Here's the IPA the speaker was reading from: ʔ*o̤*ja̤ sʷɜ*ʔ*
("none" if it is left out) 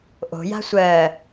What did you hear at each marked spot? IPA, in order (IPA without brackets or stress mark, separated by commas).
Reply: o̤, none